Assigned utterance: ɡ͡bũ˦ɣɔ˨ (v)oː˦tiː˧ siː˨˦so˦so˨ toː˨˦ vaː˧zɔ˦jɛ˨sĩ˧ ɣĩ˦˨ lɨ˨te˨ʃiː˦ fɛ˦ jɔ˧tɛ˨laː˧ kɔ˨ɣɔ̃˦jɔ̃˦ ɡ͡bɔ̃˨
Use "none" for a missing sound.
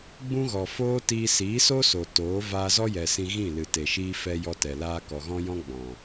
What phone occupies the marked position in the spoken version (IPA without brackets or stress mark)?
f